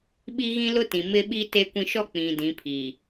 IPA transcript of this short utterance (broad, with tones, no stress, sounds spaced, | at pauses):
ɓ i˦ ɣ ĩ˦ l ʊ˦ t ĩ˨ m ɪ˦ ɓ i˦ t e˦ kʷ ĩ˦ ʃ ɔ˦ k͡p ĩ˨ d ĩ˨˦ pʰ i˨